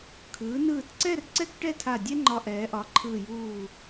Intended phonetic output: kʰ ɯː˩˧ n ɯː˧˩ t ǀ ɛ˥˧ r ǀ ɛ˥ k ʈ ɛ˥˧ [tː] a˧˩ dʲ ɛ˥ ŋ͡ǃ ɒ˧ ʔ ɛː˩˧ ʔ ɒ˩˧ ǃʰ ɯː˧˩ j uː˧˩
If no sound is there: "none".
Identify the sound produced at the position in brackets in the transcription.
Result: tʰ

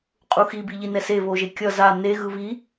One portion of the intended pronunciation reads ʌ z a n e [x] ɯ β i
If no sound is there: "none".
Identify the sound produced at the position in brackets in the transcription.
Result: ɣ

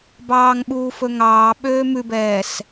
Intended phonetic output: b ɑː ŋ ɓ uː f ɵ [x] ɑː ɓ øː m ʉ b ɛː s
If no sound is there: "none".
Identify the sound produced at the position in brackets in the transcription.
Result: ŋ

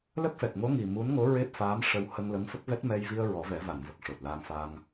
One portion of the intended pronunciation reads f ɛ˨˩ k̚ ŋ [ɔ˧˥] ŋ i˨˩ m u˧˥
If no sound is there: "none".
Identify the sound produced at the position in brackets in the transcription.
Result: o˧˥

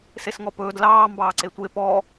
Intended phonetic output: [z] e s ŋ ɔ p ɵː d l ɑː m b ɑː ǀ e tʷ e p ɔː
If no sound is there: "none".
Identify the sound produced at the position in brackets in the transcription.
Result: s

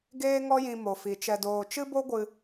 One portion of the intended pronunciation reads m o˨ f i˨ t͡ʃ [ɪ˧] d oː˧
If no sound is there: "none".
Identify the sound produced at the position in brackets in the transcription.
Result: ɛ˧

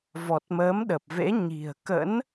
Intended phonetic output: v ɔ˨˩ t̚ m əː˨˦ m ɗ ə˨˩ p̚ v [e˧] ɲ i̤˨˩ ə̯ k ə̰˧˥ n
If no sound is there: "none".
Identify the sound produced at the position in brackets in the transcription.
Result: ḛ˧˥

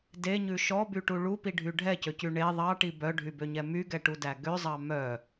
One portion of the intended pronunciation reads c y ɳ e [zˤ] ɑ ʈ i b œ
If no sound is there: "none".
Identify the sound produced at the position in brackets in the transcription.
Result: ðˤ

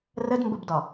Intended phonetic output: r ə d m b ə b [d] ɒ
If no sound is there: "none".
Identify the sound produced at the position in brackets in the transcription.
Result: d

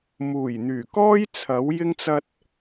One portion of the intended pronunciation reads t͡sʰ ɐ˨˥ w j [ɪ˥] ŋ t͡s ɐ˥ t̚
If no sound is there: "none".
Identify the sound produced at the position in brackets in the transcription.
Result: ɪ˥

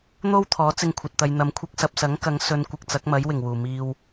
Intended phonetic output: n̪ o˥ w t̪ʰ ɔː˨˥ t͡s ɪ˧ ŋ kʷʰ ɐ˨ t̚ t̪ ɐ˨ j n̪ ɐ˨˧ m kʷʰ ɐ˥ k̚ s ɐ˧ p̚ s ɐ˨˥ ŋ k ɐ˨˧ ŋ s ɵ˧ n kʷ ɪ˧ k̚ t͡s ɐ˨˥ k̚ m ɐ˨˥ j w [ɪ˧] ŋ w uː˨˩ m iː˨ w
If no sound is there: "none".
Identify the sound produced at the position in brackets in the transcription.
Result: ɪ˨˩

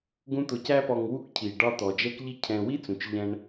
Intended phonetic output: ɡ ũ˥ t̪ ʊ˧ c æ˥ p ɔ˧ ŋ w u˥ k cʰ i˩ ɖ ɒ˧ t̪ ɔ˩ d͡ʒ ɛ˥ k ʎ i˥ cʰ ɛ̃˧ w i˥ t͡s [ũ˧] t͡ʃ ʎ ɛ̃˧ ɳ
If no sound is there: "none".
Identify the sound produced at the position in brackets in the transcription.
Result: ũ˩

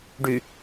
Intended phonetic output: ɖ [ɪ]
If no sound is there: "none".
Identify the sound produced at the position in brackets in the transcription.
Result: y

